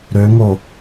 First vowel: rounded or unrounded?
rounded